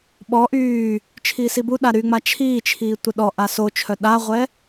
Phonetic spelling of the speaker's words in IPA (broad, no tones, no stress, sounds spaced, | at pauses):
ɓ ɔ ʔ yː | t͡ʃʰ iː s i b u ɗ a ɾ y ŋ͡m a t͡ʃʰ iː t͡ʃʰ iː tʷ ə ɗ ɔ ʔ a s o t͡ʃʰ œ ɗ a ʁʷ ɛ